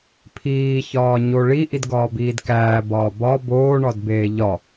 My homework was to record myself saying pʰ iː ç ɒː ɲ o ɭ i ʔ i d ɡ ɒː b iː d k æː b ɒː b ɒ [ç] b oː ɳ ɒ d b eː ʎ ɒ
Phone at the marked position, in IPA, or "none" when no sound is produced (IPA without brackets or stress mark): none